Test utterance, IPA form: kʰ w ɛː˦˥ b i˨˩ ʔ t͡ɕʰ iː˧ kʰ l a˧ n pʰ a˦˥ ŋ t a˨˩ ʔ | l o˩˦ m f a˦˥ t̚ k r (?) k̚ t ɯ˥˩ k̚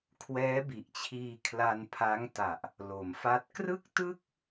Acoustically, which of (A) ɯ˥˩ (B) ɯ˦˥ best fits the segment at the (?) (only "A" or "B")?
A